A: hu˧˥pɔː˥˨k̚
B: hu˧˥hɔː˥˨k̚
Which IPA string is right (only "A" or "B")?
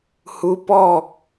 A